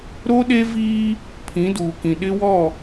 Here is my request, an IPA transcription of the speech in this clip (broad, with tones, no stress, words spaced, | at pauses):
ɾo˦ɗe˦viː˦ | pʰĩ˨˦duː˨kĩ˨ ɗɪ˦wɔ˦˨